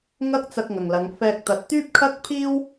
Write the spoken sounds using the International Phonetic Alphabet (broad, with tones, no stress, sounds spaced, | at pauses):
ŋ ɐ˥ k̚ t͡s ɐ˧ k̚ ŋ ɐ˨ ŋ l ɐ˨˧ ŋ f ɛː˧ k̚ t̪ ɐ˨˥ t̚ t̪ yː˥ p̚ kʰ ɐ˥ k̚ pʰ iː˥ w